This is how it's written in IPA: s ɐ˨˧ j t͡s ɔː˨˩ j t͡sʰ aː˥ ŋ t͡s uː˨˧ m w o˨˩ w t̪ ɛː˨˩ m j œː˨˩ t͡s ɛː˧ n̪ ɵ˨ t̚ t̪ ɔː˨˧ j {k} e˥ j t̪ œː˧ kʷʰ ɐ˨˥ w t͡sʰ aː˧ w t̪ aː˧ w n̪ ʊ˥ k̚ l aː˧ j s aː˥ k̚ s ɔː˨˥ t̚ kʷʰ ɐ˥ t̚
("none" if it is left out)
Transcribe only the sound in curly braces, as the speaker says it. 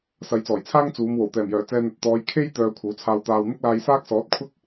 kʰ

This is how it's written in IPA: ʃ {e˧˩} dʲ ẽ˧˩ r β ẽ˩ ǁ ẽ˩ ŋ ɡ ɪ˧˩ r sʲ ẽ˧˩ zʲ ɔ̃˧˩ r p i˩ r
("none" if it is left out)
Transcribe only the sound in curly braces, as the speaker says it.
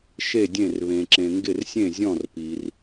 e˧˩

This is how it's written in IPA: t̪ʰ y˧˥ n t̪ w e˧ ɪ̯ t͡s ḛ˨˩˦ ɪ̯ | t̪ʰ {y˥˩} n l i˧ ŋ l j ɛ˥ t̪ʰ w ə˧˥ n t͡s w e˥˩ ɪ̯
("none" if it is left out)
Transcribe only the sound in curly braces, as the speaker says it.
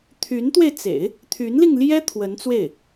y˧˥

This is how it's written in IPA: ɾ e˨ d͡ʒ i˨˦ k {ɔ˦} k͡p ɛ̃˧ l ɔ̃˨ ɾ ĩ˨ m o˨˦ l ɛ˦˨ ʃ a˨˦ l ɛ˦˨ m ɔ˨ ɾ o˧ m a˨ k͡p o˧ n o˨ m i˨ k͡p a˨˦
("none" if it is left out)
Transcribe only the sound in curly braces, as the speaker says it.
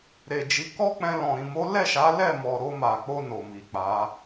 ɔ˦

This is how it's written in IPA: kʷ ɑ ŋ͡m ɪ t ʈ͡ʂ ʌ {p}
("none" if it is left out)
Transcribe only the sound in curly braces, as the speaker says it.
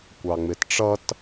t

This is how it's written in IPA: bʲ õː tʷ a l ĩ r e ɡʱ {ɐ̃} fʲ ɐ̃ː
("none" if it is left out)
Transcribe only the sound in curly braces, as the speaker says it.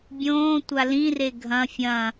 ɐ̃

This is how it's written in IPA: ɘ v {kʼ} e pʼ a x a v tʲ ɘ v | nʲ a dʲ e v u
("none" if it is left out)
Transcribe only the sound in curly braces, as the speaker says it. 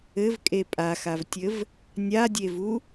kʼ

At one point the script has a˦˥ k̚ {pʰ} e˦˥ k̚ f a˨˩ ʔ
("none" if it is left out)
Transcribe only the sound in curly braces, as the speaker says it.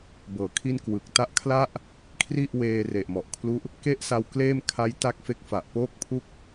f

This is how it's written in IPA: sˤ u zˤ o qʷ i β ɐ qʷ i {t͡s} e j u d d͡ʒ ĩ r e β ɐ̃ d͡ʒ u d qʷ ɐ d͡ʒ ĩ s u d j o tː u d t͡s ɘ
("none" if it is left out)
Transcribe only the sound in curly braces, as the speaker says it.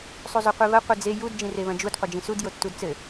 d͡z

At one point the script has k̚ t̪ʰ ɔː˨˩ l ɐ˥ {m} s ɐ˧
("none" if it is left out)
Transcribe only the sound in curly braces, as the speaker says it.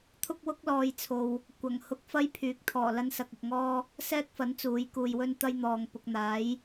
n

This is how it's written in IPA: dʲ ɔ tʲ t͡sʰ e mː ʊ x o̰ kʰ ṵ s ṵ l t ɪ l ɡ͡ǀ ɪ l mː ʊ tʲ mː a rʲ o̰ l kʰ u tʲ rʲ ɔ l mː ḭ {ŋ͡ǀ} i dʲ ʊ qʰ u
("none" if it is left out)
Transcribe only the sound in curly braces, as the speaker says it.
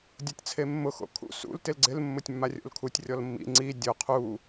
ŋ͡ǀ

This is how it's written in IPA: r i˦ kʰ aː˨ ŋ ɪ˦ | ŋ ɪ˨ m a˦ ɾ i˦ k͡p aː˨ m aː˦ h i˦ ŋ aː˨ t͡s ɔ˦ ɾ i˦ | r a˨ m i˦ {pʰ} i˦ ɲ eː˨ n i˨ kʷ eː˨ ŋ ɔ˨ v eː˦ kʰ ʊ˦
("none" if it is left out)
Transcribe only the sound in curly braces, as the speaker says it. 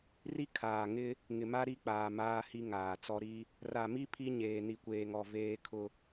pʰ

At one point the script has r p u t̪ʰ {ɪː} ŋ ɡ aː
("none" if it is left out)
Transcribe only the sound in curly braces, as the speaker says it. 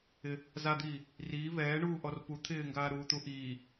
ɪː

